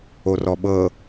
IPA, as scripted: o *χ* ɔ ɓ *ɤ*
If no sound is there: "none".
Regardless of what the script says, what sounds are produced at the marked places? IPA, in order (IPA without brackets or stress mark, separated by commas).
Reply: r, ɤ